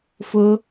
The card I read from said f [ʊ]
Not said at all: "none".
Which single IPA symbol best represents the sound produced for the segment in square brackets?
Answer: ʊ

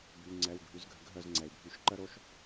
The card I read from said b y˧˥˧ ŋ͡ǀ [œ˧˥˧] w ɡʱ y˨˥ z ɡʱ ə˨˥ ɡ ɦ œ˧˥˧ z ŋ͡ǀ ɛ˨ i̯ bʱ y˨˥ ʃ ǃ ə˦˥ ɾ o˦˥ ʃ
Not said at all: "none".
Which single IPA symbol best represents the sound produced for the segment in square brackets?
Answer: ɛ˧˥˧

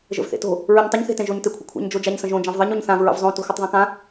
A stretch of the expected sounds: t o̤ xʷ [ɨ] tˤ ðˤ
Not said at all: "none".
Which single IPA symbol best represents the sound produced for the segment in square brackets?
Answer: ɨ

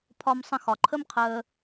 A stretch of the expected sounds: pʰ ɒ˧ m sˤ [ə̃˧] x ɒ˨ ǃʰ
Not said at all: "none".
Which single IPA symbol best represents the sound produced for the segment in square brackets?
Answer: ə̃˧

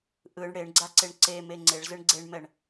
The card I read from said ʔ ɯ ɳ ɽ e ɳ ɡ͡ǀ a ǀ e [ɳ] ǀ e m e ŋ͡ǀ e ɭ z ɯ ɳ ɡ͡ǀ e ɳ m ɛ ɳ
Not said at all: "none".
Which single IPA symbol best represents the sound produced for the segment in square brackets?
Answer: ɳ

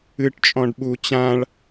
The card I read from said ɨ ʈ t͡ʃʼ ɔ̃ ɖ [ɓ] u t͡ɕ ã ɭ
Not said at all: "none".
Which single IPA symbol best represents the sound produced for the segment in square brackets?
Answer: ɓ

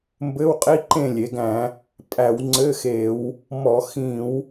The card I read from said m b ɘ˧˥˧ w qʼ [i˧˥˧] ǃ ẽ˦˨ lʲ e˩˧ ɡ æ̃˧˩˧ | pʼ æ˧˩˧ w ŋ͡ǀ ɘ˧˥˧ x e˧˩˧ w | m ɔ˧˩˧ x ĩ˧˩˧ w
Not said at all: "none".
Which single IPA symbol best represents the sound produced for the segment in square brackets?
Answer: i˧˥˧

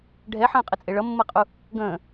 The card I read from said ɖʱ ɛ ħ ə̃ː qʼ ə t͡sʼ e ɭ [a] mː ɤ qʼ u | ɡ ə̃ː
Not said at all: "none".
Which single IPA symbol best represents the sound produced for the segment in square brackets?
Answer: ʌ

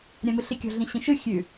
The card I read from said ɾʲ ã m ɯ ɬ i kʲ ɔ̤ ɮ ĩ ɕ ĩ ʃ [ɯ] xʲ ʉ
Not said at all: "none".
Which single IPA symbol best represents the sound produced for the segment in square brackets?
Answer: ɯ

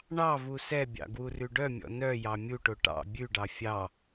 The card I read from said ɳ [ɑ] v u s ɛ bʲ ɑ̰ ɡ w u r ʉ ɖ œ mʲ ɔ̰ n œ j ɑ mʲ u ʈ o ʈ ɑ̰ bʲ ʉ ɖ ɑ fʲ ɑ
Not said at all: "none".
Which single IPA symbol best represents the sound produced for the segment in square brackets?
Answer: ɑ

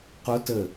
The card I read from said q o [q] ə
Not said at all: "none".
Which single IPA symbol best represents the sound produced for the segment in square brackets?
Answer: t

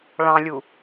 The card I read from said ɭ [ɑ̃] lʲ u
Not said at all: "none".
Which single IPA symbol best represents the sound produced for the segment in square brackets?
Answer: ɑ̃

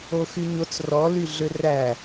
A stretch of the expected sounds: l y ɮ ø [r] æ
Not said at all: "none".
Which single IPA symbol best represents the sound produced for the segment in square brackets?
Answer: r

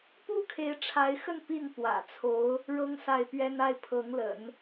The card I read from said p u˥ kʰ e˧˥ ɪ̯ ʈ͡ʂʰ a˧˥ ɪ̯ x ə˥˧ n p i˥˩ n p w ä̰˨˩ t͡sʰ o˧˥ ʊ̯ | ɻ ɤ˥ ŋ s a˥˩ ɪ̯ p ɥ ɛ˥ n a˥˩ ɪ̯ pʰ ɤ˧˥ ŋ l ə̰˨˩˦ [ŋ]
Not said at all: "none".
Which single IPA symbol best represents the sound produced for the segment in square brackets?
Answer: n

